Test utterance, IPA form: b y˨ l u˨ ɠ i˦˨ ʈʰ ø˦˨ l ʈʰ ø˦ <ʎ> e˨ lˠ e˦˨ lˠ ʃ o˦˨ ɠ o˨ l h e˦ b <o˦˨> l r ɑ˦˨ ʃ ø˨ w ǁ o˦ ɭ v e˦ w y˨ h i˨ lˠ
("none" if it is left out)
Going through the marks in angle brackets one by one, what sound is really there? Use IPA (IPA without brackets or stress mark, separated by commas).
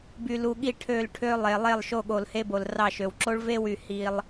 lˠ, o˨